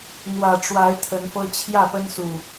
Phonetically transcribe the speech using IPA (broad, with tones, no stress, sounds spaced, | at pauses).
n̪ w ä˨˩ ʈ͡ʂ w a˨˦ ɪ̯ t̪ʰ ə˨˦ n f ɤ˦ t͡ɕʰ j ä˥˨ p ə˦ n s u˨˩